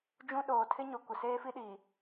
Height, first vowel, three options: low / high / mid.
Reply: high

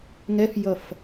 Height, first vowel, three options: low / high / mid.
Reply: mid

